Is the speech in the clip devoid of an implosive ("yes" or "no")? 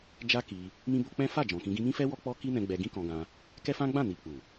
yes